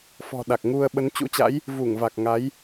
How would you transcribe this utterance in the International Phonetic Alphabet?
f ɔ̤˨˩ ɗ a˨˩ k̚ ŋ u˧ ə̯ ɓ ə˨˦ n t͡ɕ ṵ˧˥ t͡ɕ a̰˧˥ j | v u˧˩ ŋ v a˨˩ k̚ ŋ a˨˦ j

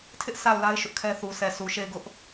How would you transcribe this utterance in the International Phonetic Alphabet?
tʰ ɪ˦ ʔ sʰ a˦˨ ʊ̯ l a˦ ɪ̯ ʃ ʊ˦ ʔ kʰ ɛ˦ θ u˨ s ɛ˨ s u˨ ʃ e˦˨ ɪ̯ ɡ ʊ˦ ʔ

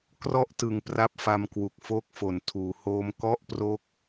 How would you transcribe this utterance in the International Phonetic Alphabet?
k r ɔ˥˩ ʔ t ɯ˨˩ ŋ p r a˥˩ p̚ f a˧ m k w u˨˩ k̚ f oː˥˩ k̚ f o˩˦ n tʰ uː˩˦ h oː˧ m k ɔ˥˩ ʔ p r o˦˥ k̚

